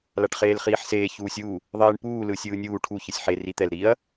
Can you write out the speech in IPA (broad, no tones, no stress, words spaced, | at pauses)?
laʈχeːlχiːħseː çuːsʲu | ðˤiːɳpuː lɯːsʲɯːnʲuː ʈʰu çɯsʲħe rit̪ɛl ɾiɐ̯